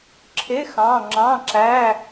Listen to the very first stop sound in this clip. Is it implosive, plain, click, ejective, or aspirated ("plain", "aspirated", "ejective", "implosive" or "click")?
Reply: click